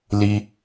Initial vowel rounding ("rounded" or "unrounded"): unrounded